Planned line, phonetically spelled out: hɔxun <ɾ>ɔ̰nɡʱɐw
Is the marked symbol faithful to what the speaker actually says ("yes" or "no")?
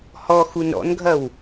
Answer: yes